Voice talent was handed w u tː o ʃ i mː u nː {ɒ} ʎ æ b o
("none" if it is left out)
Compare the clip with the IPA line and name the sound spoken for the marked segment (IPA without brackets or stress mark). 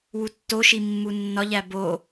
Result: ɒ